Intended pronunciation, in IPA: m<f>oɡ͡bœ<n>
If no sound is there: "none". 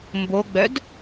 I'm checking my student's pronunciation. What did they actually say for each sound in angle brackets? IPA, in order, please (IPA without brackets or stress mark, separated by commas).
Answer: b, d